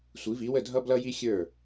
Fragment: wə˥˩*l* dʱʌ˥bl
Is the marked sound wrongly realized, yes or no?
yes